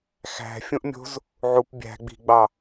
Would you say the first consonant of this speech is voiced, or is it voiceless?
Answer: voiceless